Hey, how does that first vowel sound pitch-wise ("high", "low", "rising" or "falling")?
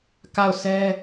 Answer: falling